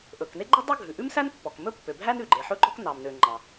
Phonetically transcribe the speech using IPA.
ʔ ɵ˩ k n e˥ ɡ͡ǃ ɵ˥ dˤ o˥ ɡʱ ʉ˩ ʔ ʉ˥ m s æ˥ n pː ɔ˩ k m ɵ˥ pː ø˩ bʱ æ˥ n ʉ˩ ɡ͡ǃ e˩ ħ ɵ˥ ɡ͡ǃ ɔ˥ k n ɑ˩ m n ø˩ ŋ͡ǃ ɑ˩

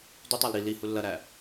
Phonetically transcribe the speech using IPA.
d y tˤ æ l ɾ i l i h u lː ɐ ɾ æ

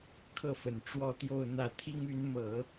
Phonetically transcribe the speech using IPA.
kʰ ɤ˥˩ f ə˨˩ n ʈ͡ʂ w ɔ˥˧ t̪ j o˥˧ ʊ̯ n̪ ä˥˩ t̪ʰ i˥ ŋ y˧˥ n m ɤ˨˩˦

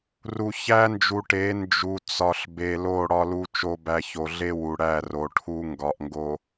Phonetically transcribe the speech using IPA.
r u˨ ç æ˦ n d͡ʒ u˨ ʈ e˨˦ n d͡ʒ u˨ t͡s ɒ˨ ɬ b e˨ l o˦˨ ɽ ɒ˦ l u˦ t͡ʃ o˦ b æ˦ ç o˨ ɮ e˦ w u˨ ɽ æ˦˨ r o˨ ʈʰ u˦ ŋ ɡ ɒ˨ ʔ ŋ ɡ o˨

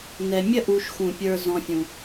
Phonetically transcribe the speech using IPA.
n ɛ˨ mʲ ə˧ ʔ u˨ ʃ x ũ˨ pʲ ə˞˧ z ɔ̃˧ fʲ ũ˨

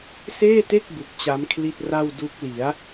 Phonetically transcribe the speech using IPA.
s eː˥˩ t e˥˩ k̚ b u˨˩ k̚ t͡ɕ a˦˥ m kʰ l i˥˩ t̚ r a˥˩ w d u˦˥ k̚ l i˩˦ a̯

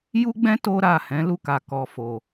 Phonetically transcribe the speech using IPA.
j u˦ ɡ͡b ɛ̃˦ t o˦ ɾ a˦˨ h ɛ̃˨˦ l u˦˨ k a˨ k ɔ˨ f o˨

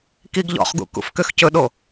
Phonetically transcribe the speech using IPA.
k i ɡ ʎ ɔ̰ χ ɡ ṵ k ṵ f k ø x c ɵ ɗ o

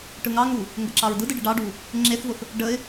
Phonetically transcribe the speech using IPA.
ʈ ɯ ŋ ɑ ŋ u | ŋ ɡ ə ǁ ɑ ɹ d ɯ d ɯ ɖ ɯ ɖ ɑ ɖ u | ŋ͡ǁ e θ v ʊ θ | ɖ ə ɪ̯

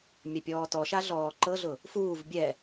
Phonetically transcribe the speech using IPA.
mʲ a pʲ ɔː t ɔ ʃ a ɮ ɔː ǃ ɤ ɮ ʊ | f uː v bʲ ɛ

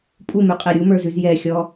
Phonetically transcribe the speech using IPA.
pʼ u m ʉ qʼ ɛ ɾʲ u m ə˞ z ʉ z j ɛ xʲ ɔ

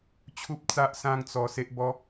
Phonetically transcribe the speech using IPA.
t͡ɕʰ u˦ p̚ t͡s a˦ ʔ s ã˦ ŋ t͡s ɔ˧ s e˦ ʔ b ɔ˦

